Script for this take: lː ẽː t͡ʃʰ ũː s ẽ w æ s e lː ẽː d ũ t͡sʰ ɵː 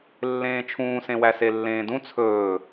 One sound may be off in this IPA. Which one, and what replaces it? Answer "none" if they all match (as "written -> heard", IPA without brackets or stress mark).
none